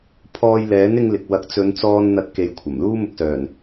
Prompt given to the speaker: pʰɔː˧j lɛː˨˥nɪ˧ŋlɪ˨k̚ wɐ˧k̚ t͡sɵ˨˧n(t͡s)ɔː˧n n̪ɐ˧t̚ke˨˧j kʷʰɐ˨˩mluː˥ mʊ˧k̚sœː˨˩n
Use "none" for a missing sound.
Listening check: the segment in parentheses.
t͡s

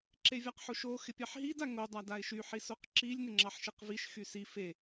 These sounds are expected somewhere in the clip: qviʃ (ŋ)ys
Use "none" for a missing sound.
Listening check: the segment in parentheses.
x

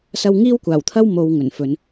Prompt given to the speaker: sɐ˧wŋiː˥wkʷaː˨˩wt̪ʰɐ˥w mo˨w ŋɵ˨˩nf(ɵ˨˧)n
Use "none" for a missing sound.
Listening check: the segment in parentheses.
ɵ˨˧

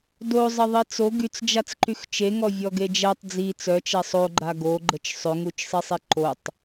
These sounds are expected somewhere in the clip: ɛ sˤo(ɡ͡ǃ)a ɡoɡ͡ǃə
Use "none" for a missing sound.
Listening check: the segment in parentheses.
ɡ͡ǃ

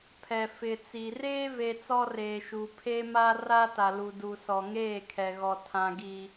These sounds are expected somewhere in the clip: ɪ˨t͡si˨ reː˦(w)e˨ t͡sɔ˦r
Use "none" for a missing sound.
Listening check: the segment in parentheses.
v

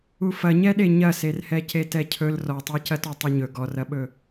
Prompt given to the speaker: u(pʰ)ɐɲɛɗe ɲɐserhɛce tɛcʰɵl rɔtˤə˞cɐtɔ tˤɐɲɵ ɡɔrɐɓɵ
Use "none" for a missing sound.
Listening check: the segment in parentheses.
f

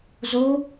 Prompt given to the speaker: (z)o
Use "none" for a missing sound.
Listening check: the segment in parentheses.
z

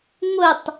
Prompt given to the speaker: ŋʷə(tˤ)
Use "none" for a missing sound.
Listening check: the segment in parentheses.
tˤ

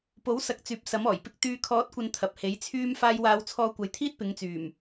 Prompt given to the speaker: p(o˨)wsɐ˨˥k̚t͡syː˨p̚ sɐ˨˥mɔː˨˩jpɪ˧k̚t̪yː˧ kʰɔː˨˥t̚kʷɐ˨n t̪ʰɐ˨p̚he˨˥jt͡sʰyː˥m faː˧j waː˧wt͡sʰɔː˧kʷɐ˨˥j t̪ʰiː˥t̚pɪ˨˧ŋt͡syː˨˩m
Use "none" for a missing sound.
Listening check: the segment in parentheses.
o˨˥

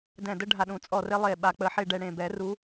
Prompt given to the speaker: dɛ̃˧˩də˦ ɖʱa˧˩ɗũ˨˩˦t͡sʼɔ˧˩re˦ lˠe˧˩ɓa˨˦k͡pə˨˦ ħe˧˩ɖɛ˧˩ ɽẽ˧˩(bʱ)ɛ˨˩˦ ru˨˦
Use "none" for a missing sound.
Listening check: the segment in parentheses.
b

